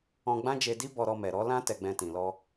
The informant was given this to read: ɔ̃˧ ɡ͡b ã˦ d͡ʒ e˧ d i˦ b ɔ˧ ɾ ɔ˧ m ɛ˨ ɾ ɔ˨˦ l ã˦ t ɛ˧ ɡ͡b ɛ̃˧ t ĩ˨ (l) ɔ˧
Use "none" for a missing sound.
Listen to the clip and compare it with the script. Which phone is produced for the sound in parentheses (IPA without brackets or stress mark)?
l